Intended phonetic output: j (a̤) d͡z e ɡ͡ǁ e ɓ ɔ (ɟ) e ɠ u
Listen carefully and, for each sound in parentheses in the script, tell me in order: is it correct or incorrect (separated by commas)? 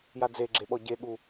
incorrect, correct